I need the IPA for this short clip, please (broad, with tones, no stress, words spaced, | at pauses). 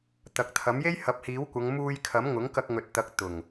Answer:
t̪ɐ˨k̚t̪ʰɐ˨˥m je˥jhɐ˨˥p̚hiː˨˥wkʷɐ˨˧ŋ muː˧jkʰɐ˨˥m ŋʊ˨˥ŋkɐ˧k̚ŋɵ˨t̚ t̪ɐ˨˥k̚ t̪ʊ˨˩ŋ